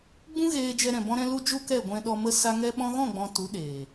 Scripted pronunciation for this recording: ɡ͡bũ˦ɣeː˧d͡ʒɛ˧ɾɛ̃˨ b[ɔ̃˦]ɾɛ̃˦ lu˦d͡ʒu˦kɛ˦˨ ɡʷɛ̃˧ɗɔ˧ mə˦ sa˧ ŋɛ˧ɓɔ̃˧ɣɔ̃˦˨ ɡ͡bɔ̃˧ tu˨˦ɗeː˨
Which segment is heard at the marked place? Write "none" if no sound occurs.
ɔ̃˦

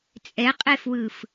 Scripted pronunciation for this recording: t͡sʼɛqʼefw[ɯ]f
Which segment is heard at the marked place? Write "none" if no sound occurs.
ɯ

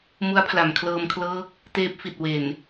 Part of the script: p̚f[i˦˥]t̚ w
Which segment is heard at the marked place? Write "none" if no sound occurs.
i˨˩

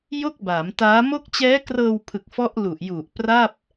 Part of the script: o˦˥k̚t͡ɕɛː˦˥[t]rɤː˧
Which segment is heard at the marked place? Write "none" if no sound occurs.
k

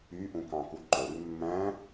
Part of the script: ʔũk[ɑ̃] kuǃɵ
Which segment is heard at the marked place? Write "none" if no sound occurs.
ɑ̃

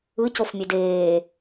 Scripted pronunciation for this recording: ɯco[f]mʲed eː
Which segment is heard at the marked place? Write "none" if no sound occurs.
f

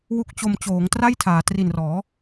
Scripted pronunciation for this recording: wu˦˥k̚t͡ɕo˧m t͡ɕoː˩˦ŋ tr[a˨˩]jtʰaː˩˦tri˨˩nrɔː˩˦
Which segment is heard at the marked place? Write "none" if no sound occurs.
a˥˩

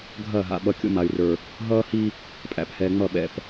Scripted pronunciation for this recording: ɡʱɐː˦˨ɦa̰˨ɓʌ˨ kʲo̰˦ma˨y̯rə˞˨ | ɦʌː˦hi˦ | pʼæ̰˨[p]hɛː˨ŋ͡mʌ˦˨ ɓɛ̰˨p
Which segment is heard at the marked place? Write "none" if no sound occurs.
p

